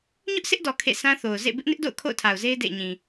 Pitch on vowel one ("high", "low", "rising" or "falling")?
high